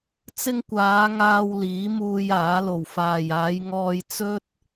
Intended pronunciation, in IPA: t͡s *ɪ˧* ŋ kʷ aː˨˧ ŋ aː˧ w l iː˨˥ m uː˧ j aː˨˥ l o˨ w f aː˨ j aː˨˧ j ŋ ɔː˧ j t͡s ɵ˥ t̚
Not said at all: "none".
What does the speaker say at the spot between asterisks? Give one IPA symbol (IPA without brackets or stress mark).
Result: ɪ˧